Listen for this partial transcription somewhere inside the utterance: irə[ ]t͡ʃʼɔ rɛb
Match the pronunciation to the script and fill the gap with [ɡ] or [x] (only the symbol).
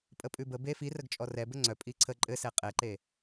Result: ɡ